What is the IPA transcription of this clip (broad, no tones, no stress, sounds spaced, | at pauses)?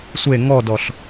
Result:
sʷ e ŋ ɔ d ɔ ɬ